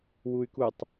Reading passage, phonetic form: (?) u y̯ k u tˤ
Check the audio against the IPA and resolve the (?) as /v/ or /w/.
w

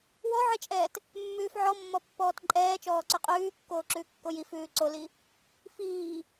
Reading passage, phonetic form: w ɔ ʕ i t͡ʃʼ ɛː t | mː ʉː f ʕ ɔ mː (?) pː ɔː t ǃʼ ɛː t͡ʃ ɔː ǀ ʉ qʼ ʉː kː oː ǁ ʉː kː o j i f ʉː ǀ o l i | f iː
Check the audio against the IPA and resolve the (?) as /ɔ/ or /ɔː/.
ɔ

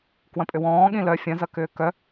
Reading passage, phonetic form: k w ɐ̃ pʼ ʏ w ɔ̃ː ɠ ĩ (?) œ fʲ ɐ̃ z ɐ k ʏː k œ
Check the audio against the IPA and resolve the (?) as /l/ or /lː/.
l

